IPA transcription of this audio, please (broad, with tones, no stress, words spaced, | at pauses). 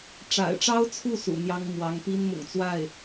ʈ͡ʂa̰˨˩ɪ̯ʈ͡ʂɑ˥ʊ̯t͡sʰu˥˩ sṵ˨˩n̪jɑ˥ŋ mwɑ˧˥ŋ pi˥n mʊ̰˨˩ŋt͡swa˥˩ɪ̯